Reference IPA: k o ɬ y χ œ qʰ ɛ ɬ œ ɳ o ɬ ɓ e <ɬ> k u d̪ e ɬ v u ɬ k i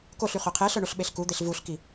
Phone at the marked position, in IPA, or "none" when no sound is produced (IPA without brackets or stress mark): ɬ